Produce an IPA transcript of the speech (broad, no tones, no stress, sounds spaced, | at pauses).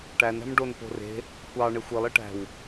ʈ æ n æ̤ m ɖ o n p o̤ r e̤ | kʷ ɑ ɳ e xʷ i lˠ i ʈ æ̤ w